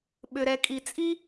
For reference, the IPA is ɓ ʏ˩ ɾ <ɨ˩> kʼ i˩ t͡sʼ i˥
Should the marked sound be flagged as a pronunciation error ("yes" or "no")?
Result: yes